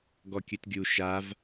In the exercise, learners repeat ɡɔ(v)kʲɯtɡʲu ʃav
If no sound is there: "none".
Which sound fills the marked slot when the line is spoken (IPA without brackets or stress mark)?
none